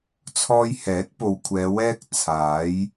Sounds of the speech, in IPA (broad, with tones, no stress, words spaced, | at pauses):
t͡sʰɔː˧jhɛː˨˥t̚ po˨wkʷʰɛː˨˧ wɛː˥k̚t͡sʰaː˨˥j